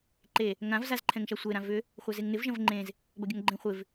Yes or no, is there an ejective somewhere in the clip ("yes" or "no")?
no